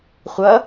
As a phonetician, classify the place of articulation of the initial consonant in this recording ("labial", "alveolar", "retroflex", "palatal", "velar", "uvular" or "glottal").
uvular